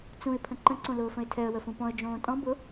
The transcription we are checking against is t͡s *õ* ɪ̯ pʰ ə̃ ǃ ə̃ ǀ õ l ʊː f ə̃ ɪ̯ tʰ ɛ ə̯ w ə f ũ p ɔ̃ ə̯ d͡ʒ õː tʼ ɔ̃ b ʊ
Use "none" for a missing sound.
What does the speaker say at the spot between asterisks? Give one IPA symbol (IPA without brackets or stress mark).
ũ